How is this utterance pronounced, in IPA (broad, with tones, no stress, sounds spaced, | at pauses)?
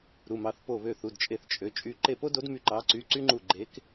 ɾ u˩˧˩ m ɑ˩˧˩ θ p o˧˩ β ø˧˩ θ u˩˧˩ d t͡ʃʼ e˧˩ θ t͡ʃʼ ø˩˧˩ t͡ʃʼ y˧˩ ǃ e˧˩ p o˦ d o˨˦ d m y˧˩ ǃ ɑ˨˦ ǀ y˩˧˩ ǀ y˦ ŋ͡ǃ u˧˩ ɡ͡ǃ e˨˦ k